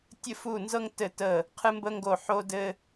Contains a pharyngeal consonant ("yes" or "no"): yes